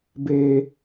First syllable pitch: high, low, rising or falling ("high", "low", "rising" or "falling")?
high